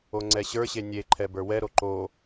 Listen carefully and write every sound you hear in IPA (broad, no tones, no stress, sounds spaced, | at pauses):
o ŋ͡ǀ ɛ ɕ ə˞ ɕ e nʲ e ǃʰ ɛ b ə˞ w ɛ ɾ o ǃ o